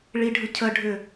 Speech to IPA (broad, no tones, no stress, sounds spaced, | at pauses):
ɭ i ɖʱ ɯ cʰ ə ɖʱ ʏ